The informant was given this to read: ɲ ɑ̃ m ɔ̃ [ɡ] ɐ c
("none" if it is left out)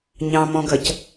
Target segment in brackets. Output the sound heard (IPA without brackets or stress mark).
ɡ